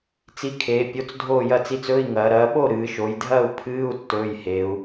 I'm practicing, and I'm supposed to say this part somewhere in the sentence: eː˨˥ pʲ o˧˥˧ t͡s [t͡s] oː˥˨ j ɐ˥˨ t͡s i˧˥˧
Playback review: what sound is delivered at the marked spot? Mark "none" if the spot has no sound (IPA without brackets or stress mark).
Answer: dʱ